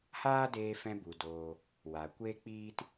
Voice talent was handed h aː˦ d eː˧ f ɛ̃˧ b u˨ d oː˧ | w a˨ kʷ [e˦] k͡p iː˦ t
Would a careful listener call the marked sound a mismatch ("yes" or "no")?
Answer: no